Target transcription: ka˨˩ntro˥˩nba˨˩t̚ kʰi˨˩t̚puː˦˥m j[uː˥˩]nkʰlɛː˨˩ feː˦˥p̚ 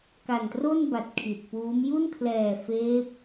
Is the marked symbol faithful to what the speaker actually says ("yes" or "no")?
no